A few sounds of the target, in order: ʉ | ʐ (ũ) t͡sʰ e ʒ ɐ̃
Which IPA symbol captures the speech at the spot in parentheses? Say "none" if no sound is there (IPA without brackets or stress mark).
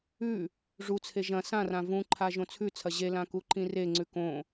u